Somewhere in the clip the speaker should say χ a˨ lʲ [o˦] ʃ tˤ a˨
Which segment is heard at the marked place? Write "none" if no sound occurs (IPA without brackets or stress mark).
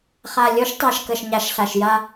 o˨˦